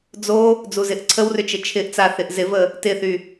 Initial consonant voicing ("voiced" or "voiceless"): voiced